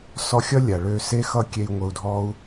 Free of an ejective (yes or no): yes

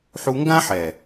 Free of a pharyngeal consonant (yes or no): no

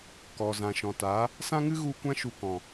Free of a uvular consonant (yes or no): yes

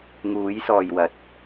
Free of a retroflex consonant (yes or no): yes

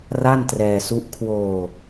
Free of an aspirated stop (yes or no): no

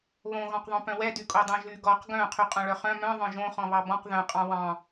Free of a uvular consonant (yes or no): no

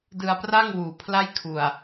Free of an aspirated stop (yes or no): no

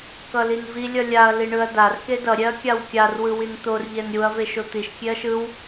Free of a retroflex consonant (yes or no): no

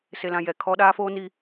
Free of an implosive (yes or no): no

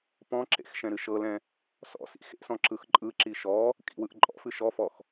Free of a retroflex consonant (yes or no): yes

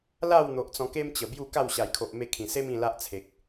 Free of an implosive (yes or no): yes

